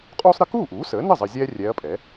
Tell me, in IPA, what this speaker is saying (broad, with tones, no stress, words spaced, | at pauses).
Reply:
qʼuː˥sˤɾə˥ kuː˥˩ʔuː˩˥səː˩˥nə˥˩ zˤə˧ zʲɛː˥rʲɛː˧˥ɐ̯pʼɛ˩˥